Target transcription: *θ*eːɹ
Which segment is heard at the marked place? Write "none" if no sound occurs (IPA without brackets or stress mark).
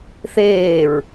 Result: θ